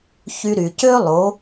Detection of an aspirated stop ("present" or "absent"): absent